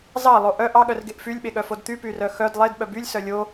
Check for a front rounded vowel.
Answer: present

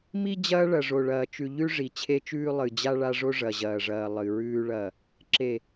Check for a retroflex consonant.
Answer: present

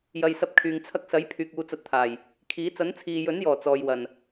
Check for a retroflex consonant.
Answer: absent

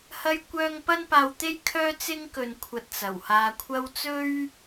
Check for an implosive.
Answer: absent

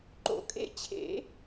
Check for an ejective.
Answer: present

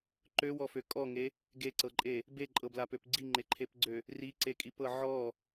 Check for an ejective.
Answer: present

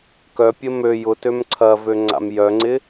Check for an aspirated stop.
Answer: present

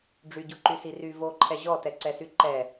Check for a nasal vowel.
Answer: absent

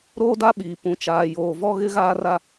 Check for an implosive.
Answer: present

